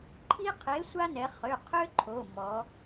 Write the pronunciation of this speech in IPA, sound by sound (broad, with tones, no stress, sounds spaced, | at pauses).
ǃʰ i˦ qʰ e˨˥ sʷ a˦ n ɛ˩˧ χ ø˩˧˩ qʰ ø˦ ǃʰ o˩˧˩ m ɔ˩˧